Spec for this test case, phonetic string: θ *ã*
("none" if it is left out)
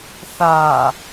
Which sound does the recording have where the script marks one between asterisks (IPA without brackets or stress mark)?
a